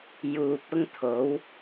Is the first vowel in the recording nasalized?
no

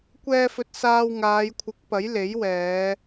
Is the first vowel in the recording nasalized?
no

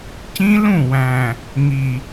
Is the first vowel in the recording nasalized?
yes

